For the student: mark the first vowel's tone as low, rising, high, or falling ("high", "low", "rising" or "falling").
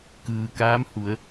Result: low